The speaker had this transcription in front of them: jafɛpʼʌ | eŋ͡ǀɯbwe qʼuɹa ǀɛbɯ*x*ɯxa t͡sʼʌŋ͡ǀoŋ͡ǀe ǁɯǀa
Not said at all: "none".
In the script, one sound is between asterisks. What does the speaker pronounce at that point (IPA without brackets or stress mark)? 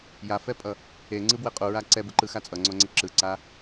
ǃ